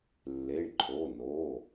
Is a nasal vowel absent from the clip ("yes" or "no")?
yes